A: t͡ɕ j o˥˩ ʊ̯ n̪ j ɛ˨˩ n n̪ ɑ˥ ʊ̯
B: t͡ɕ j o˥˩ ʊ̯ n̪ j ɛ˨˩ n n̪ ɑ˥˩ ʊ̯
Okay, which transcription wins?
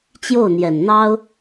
A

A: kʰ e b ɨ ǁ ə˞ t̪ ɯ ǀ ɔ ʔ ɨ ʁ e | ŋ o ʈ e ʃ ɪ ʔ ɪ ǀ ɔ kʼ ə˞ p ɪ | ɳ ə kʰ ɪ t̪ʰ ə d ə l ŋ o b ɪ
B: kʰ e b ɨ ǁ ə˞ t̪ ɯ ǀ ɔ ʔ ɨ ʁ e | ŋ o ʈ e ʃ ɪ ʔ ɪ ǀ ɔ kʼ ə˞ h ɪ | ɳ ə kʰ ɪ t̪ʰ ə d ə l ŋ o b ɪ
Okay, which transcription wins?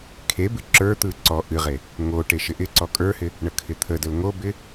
B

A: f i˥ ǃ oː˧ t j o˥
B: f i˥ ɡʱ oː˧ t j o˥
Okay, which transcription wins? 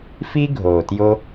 B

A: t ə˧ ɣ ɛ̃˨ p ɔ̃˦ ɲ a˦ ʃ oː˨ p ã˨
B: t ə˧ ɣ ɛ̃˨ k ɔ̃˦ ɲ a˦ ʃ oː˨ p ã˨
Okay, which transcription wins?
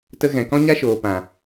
B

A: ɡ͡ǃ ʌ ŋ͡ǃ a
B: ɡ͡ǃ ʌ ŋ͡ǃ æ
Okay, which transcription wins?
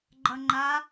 A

